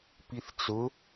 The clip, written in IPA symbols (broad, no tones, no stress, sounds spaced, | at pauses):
p i θ t͡s ʊ